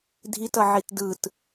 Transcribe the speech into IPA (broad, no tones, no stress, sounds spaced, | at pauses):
dʱ i t ʌ ʕ i t d ɯ t